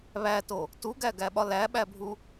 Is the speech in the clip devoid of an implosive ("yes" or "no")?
no